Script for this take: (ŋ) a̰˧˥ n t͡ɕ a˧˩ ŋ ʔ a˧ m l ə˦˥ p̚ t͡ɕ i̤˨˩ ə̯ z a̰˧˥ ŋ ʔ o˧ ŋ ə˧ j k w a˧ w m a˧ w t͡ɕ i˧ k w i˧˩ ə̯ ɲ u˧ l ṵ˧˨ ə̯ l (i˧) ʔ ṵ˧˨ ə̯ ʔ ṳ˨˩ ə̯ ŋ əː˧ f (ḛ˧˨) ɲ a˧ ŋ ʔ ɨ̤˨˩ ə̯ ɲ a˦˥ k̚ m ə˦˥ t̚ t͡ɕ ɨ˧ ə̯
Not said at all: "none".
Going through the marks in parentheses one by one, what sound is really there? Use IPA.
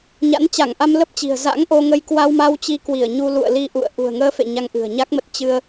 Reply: ɲ, i˧, ḛ˧˨

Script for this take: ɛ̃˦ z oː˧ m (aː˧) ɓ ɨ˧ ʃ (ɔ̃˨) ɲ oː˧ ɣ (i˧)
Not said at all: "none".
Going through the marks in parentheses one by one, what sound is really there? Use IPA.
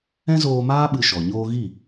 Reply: aː˦, ɔ˨, i˦˨

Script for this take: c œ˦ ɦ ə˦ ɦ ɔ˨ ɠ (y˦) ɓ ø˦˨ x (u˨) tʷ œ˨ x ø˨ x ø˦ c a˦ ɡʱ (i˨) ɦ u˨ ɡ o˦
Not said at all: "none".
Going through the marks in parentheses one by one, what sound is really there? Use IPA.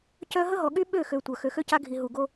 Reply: y˦, ø˨, i˨

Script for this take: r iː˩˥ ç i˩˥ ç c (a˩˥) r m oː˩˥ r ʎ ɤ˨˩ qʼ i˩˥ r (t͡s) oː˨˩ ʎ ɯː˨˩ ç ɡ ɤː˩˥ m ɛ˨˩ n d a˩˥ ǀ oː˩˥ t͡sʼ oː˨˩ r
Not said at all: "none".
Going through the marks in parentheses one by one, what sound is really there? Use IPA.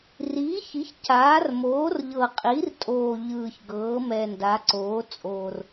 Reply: aː˩˥, tʼ

